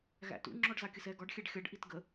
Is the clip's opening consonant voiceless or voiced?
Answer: voiced